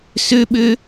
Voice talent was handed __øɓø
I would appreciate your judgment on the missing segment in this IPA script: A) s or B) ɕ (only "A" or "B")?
A